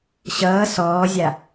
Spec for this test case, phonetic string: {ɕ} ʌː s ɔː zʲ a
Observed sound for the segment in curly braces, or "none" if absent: ɕ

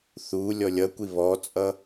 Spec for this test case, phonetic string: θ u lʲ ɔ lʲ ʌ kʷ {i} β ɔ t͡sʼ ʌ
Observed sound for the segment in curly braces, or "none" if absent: i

